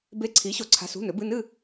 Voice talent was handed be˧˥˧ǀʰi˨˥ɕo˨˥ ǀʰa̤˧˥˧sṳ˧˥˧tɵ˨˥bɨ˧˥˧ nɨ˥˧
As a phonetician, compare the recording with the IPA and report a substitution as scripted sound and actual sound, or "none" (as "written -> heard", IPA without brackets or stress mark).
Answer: t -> n